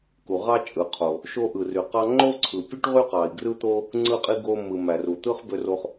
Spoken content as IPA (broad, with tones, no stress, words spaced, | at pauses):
ku˧ʁɑ˥ t͡ʃʼɯ˧ qʰo˧ | ʃo˥ʔɯ˧ry˧qɑ˥ ŋ͡ǃo˥ǀʰɯ˧ pʲɯ˥ʈʁy˥qɑ˧i̯ ɡrɯ˥t̪o˥ | ŋ͡ǀɯ˥qʼi˥ɡo˥ mɯ˧ mæ˧ru˧t̪ɯ˥χ bø˥ro˥χ